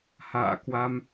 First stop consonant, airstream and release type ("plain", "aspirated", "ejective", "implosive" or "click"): plain